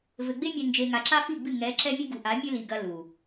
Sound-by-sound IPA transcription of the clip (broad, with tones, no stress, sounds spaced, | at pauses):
v ɘ˨ ɡ͡b e˦ mʲ ɛ˨ n d͡ʒ e˨ ŋ a˨ ǁ a˦ f i˦˨ ɡ͡b ɨ˦˨ ŋ ɛ˨˦ ǁ ɛ˦ mʲ ɨ˦ ɡ u˨ ʔ a˨˦ mʲ ɘ˦ l i˨ ɡ ɐ˨ l u˨